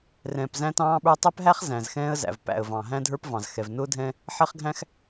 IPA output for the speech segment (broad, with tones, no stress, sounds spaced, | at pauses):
r ɛ̃ː˨ p z æ̃˦ t ɑ̃ː˦ ɓ ə˞˦ tˤ ɛ˦ p ɦ æ˦ χ z æ̃˨ z x ɛ̃ː˦ ə̯ z æ̰˨ v p æ̰˨ ə̯ v ɑ̃˨ ɦ æ̃˦ dʱ ə˞˦ p v ɑ̃˨ z x ɛ˨ v n ʊː˦ dʱ ɛ̃˦ | ħ ɛ˦ χ ɡʱ æ̃˦ x